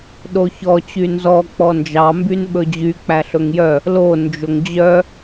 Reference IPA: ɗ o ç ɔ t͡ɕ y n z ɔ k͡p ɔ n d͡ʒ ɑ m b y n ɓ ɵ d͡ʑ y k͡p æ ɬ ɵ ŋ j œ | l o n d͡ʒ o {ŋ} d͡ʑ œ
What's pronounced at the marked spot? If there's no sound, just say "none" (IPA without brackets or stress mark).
ŋ